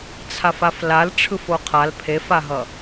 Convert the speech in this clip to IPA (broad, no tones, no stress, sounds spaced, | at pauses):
t͡sʰ a f a f l a l ʈ͡ʂʰ ɯ f o qʰ a l pʰ e f a ɦ ʌ